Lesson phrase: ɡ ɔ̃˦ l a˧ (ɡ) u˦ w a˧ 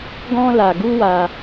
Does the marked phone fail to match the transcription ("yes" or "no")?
no